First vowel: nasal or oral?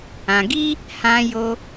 nasal